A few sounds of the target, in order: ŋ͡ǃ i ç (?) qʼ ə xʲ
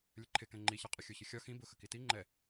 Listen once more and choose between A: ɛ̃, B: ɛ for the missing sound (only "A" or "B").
B